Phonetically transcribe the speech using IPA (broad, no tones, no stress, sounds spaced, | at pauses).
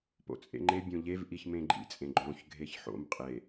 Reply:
p o̰ t͡sʼ ḛ ŋ͡ǃ e bʲ õ ʎ e v ʔ i ç m ẽ ɡ͡ǃ ḭ t͡sʼ ẽ ɡ͡ǃ õ ç ɡʱ e ç ħ o̰ m qʼ e